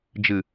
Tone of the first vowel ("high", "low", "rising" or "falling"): low